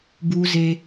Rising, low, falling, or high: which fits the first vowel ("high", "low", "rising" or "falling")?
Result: high